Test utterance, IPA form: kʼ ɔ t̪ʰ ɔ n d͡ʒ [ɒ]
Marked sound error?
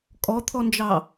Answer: yes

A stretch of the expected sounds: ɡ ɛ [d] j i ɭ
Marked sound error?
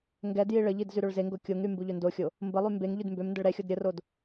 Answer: no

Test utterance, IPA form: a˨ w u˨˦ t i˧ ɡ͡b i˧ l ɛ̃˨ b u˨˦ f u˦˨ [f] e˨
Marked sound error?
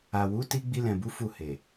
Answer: yes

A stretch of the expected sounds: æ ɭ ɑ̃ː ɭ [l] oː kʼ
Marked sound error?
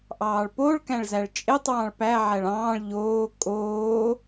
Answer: yes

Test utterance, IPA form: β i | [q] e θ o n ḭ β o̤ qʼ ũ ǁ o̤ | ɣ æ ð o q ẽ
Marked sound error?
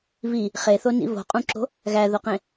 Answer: yes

